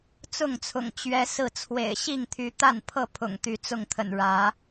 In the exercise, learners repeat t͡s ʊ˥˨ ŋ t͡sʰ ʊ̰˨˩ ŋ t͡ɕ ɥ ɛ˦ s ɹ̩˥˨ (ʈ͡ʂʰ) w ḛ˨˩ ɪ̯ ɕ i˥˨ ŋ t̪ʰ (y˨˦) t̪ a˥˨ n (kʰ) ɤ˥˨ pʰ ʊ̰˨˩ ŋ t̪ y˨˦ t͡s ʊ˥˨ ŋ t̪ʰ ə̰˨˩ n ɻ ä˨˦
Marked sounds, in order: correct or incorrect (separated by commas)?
incorrect, correct, incorrect